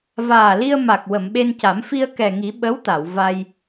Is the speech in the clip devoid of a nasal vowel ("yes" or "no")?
yes